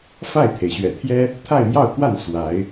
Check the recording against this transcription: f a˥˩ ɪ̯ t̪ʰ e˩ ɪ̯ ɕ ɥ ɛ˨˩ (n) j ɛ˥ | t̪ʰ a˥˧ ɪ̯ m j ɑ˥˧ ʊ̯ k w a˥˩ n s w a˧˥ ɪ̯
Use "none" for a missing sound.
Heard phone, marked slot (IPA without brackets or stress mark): t̪ʰ